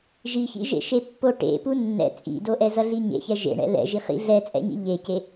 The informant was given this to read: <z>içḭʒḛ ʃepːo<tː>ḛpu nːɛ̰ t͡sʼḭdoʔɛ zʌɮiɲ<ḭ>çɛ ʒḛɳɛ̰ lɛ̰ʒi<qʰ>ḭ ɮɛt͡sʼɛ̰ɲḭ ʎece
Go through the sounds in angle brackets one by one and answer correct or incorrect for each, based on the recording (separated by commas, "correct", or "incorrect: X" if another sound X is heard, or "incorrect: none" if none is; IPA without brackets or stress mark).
incorrect: ʒ, incorrect: ʈ, incorrect: ḛ, incorrect: χ